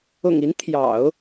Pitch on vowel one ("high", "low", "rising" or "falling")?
low